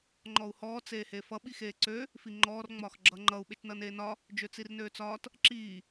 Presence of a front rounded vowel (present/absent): present